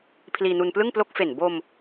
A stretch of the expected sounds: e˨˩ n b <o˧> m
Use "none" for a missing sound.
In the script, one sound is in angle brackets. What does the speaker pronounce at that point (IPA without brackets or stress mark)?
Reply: o˧